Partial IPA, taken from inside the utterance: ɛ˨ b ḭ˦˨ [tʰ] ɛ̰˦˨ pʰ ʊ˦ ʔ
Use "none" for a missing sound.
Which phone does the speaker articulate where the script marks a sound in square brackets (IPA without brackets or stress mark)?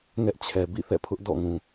θ